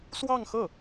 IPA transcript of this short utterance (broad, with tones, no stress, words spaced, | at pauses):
swɑ˥˧ŋxɤ˥˩